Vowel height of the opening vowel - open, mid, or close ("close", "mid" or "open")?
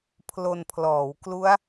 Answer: mid